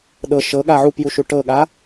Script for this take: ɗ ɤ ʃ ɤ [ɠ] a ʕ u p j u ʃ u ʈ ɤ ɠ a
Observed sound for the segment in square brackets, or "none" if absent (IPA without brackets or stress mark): ɠ